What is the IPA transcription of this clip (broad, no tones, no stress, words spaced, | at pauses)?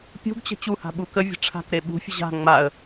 pʲṳɡt͡ɕə̤ t͡ɕuha̤ ɓukəvʲə̤ ʈ͡ʂʰa̤k ɾeɓṳfʲə̤ ʑa̤ ŋ͡maə̯